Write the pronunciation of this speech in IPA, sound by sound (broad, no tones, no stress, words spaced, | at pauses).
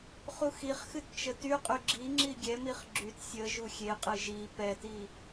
χuxiχxɨt t͡ʃətyqʼy ɡ͡ǁi ŋ͡ǁiɡʲɛmiχ ɡ͡ǁyt sʲə ʒuxʲeqʼɨ ʒi pɛti